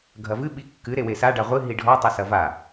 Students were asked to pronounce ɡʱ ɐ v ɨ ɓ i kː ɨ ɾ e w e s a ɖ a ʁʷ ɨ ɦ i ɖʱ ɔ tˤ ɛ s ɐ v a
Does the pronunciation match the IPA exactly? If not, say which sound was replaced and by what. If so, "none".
none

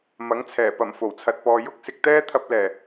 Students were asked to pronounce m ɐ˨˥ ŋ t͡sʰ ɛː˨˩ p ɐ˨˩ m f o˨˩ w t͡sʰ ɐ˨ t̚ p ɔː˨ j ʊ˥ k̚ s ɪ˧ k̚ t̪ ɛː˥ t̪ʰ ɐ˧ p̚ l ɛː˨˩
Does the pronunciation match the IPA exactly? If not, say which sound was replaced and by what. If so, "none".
none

